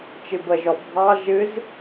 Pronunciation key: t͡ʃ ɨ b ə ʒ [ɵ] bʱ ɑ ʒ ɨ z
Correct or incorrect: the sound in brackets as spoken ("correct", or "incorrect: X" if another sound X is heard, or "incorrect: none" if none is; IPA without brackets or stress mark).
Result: incorrect: ɔ